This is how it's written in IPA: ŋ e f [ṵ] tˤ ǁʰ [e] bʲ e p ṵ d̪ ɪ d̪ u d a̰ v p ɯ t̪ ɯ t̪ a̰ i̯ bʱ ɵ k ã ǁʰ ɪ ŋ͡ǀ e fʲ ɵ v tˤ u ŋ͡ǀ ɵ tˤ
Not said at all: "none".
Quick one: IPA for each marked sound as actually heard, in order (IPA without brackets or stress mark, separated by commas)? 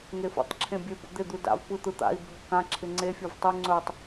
ṵ, ẽ